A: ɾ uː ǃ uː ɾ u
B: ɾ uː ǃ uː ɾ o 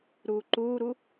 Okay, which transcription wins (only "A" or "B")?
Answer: A